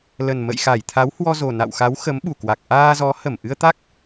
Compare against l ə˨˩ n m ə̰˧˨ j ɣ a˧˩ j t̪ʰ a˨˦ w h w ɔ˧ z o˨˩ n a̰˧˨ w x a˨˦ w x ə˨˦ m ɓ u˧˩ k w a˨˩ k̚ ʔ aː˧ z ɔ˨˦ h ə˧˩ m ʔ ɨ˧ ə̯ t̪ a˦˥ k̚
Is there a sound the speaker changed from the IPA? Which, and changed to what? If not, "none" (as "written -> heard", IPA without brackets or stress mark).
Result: ɣ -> x